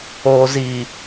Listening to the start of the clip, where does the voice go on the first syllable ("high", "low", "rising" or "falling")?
low